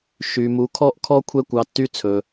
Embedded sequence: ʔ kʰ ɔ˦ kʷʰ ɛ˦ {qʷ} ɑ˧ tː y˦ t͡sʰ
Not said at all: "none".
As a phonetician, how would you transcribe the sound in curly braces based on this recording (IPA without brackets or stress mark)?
kʷ